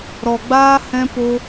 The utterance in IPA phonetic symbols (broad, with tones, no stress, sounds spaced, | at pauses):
ɾ ɔ˧ ɡ͡b aː˦ h ɛ̃˦ p o˦